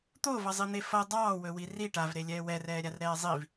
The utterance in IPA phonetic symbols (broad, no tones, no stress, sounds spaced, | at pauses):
t̪ o v ʌ zˤ i n̪ e f ʌ dˤ ɑː w ɵ w i r i ʈ a v ɾ e lʲ ɛː w ɛ r ɛː ɾʲ a r ɾ ɛː zˤ i v